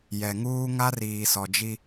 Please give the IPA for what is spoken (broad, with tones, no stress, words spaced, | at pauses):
jɛ˨ŋuː˦ ŋa˦riː˨sɔ˨d͡ʒi˦